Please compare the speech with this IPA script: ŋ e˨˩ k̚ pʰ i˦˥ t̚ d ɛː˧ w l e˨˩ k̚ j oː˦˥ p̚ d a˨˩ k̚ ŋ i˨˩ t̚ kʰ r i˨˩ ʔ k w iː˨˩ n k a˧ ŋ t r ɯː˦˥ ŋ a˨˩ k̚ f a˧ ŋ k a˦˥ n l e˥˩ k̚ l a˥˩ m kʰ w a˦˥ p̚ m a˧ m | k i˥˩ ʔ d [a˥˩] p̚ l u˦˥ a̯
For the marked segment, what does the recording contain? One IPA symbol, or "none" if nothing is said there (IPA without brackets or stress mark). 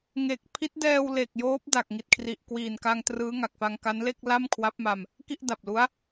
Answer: a˨˩